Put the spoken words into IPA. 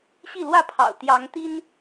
ɕi˥˨lwä˥˨pʰɑ̰˨˩ʊ̯ t̪jɑ˨˦ŋt̪i˦n

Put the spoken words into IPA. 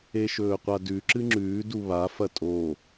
eʃɵːqʷadʉ ǁɨŋ͡ǁʉː duβa fɐtʼo

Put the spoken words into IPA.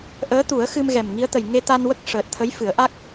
ʔəː˧˥t̪u˨˩˦ə̯ xɨ˧mɣɛ˨˩mŋi˧˥ə̯t̪ə˨˩j ŋe˧t̪a˧nwə˦˥k̚ ʂəː˨˩t̚t̪ʰə˧˥jfɨ˨˩˦ə̯ʔa˦˥k̚

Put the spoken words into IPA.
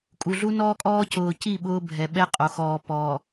kʼu˨ɮu˦nɔː˦kʼɔː˦ cʊː˨ci˦˨ ɓʊː˦bʱɛ˨ɓɛ˦ qʼo˨ xɔː˨pɔː˨

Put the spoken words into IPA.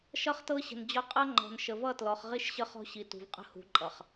ʃʌ˦χtɤ˦ɕə̤˨nd͡ʑɒ˦ qʼʌ˦ ŋ͡ǃɔ̤˨n ʃə˨vʌ˦˨tlɔ˨χʁi˦ʃ ɕə˦χɔ̤˦ɕi˨tṳ˨v qʼə̤˦hṳ˨˦ ǃʼʌ˨χ

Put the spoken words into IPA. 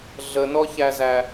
ɮənɔçæzæ

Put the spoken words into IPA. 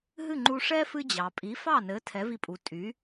ɦɨ˥˩ŋ͡ǃu˧ʂɛ˥ fɨ˥d͡ʑɑ˩ pʼi˩˥fɑ˥˩nɘ˩˥ tʰɛ˩˥vi˧pʼu˩ tʼy˩˥

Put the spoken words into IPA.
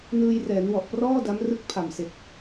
nɯː˧jrɛː˩˦n wɔ˨˩ʔprɔː˥˩ da˦˥mrɯ˦˥k̚ pʰa˨˩mse˨˩k̚

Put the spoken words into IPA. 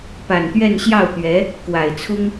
pa˨˩nt̪ɥɛ˥˧nɕjɑ˥˩ʊ̯t̪ɥɛ˧˥ | kwa˨˩ɪ̯t͡sʰʊ˥ŋ

